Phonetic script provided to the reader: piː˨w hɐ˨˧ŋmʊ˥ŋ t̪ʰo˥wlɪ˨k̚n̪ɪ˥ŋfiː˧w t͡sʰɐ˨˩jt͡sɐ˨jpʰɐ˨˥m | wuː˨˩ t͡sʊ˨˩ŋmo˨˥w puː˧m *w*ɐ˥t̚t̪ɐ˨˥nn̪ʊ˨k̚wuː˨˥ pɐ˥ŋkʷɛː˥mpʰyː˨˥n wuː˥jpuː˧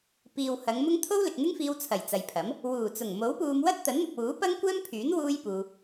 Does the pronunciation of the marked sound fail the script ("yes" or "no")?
no